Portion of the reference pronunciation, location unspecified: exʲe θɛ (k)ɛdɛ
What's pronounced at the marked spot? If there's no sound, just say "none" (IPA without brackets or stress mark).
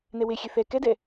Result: k